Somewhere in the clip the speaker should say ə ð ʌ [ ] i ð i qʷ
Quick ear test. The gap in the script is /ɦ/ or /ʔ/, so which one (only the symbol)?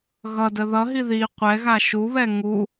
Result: ɦ